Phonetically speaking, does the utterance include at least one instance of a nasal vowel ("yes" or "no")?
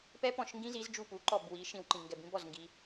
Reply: yes